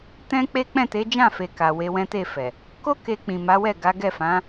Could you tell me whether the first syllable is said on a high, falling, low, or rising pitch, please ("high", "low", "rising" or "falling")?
high